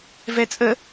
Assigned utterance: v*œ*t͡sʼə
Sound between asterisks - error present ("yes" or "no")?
yes